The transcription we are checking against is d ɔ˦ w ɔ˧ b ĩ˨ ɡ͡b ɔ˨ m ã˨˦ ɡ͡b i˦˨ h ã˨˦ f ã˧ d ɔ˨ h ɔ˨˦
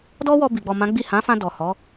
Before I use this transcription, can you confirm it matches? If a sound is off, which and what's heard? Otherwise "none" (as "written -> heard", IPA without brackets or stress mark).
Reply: ĩ˨ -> i˨